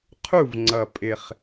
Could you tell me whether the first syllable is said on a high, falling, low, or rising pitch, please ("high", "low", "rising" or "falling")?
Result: falling